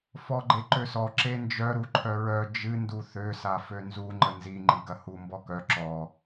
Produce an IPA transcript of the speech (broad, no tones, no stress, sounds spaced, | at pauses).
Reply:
f ɔ ɡ͡ǃ e ǃ ø s ɔ ǁ e n d͡ʒ œ ɾ u ǃʰ œ ɹ œ d͡ʒ ɨ n d u θ ø s a f ø n z u ŋ͡ǃ ə n z i ŋ͡ǃ i ɡ ɐ h u m b ɔ k œ ǁ ɔ